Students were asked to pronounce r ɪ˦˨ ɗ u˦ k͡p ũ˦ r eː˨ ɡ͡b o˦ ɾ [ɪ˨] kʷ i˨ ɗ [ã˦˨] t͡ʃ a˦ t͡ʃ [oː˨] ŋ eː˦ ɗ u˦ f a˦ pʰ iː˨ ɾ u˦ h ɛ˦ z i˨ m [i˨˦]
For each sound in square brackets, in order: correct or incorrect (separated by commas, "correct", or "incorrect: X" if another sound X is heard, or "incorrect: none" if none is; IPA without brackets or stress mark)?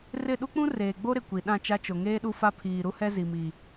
correct, correct, incorrect: o˨, incorrect: i˨